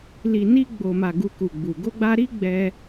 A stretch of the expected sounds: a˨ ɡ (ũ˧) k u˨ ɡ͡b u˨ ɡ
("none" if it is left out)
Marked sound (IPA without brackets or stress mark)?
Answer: u˧